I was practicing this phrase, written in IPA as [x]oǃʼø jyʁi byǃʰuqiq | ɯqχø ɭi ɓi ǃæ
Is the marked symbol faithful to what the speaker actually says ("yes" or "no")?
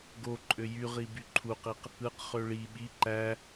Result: no